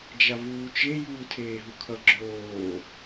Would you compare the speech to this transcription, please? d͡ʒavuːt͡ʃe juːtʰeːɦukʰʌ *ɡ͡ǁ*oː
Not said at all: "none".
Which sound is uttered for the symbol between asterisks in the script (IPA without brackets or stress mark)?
ɡ͡ǁ